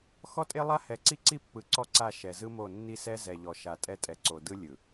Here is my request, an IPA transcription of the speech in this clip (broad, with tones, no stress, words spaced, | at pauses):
xɔ˦tʼe˦lˠa˦ hɛ˨ǀi˦ǀi˦pːɯ˨ ǀɔ˦ǀa˦˨ ʃɛ˨zɯ˦mo˦˨ nːi˦sɛ˦ zɛ˨ʎɔ˨ʃa˨ tʼɛ˦ tʼɛ˨ǀo˨ dɯ˦lʲɯ˨